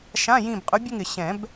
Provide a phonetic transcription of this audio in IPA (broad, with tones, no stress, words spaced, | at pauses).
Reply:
ʃã˧˥˧jĩ˦˨bqʼʊ˧˥ bʲʊ˥ŋɪ˨ ɕɛ̃˨˩˦b